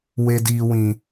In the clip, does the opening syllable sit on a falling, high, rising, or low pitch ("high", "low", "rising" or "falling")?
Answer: high